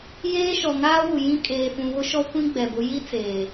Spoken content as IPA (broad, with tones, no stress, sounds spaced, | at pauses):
j eː˦ ʃ ɔ˨ ŋ aː˦ w u˨ j ĩ˦ kʼ eː˨ f ũ˨ β ʊ˦ ʃ ɔ˦ kʷ ĩ˦ ɡ͡b ɛ˨ b ʊ˨˦ j i˦ t͡s eː˨